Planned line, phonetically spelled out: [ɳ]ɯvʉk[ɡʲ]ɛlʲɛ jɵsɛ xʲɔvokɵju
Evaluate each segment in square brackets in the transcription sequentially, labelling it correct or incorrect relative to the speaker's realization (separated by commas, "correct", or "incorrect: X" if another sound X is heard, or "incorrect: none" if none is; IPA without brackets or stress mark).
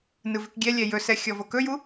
incorrect: n, correct